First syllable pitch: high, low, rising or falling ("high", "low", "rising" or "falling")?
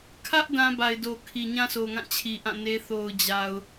high